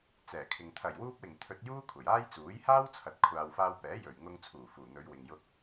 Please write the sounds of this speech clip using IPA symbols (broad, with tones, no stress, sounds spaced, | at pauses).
t͡s ɛː˨˩ kʰ ɪ˨ ŋ t̪ʰ ɐ˨˩ j w uː˧ p̚ w ɪ˨˩ ŋ t̪ʰ ɵ˧ t̚ j uː˥ kʷʰ ɐ˨˩ j aː˥ j t͡s uː˨˥ j h aː˥ w t͡sʰ ɐ˨˥ t̚ kʷʰ aː˨ w f aː˧ w p ɛː˨˥ j ɵ˨˩ ɥ ŋ ʊ˧ ŋ t͡sʰ uː˨˩ f uː˨˩ n̪ ɵ˨˧ ɥ w ɪ˨ ŋ j ʊ˧ k̚